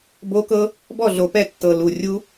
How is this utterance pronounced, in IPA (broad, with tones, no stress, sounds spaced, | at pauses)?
b o˦˥ k ɤ˦˥ | b ɔ˥˨ ɮ o˨˩ p ɛ˥˨ tː ɤ˨˩ l u˨˩ rʲ u˦˥